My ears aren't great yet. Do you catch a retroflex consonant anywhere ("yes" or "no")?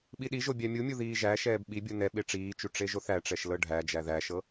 yes